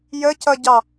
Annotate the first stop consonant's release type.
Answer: plain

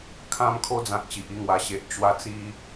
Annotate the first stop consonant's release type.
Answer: aspirated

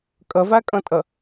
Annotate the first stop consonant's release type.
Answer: ejective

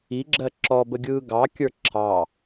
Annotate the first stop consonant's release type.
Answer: click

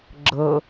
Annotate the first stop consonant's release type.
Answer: click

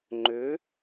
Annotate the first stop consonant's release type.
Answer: click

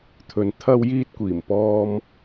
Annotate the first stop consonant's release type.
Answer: aspirated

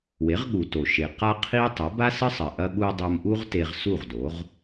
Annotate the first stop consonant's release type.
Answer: implosive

